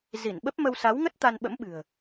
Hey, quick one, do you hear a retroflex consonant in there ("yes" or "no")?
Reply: no